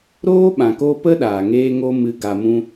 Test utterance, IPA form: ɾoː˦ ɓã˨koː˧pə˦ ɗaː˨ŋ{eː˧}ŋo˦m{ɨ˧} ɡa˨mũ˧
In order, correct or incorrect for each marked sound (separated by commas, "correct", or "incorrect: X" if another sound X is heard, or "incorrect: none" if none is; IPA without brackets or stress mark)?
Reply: incorrect: eː˦, correct